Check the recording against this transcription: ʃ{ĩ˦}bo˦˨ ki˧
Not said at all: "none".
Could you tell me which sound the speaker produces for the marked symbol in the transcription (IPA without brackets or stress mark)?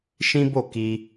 ĩ˦